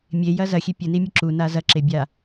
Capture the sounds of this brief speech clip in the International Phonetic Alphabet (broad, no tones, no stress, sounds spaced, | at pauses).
mʲ e j ɐ z ɐ xʲ e pʲ ɘ n i mʲ ɘ ǁ u n a z ɐ ǁ e bʲ a